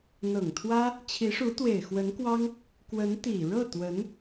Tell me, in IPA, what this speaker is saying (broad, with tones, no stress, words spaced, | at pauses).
n̪ɤ˨˩ŋt̪ʰwä˥ | t͡ɕʰi˧˥ʂu˧˥t̪we˨˩ɪ̯ xwə˧˥nkwɑ˥ŋ | kwə˧˥n t̪i˨˩ ɻɤ˥˩t̪wə˧˥n